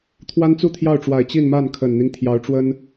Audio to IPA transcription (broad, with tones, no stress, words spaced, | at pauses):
t̪ʰwa˥nt͡su˥˧t̪ʰjɑ˥˩ʊ̯ʈ͡ʂwa˨˩ɪ̯ t͡ɕi˥˧nma˥˩n kʰə˨˩nn̪i˦ŋ t̪ʰjɑ˧˥ʊ̯ʈ͡ʂwə˥n